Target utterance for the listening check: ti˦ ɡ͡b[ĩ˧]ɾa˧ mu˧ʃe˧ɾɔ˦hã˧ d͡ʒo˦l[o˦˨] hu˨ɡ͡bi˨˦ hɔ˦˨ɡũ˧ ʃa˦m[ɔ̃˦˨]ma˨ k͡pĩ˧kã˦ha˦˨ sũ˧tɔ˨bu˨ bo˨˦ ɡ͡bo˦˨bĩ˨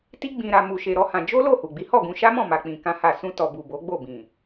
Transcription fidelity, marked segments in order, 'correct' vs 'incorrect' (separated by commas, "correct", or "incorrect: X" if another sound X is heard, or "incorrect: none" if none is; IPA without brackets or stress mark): correct, correct, correct